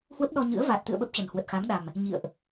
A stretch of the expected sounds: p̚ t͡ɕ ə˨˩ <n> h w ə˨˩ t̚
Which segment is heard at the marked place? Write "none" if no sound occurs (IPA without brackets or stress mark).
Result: n